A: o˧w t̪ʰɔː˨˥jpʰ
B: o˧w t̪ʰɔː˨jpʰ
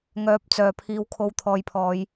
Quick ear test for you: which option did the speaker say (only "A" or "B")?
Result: B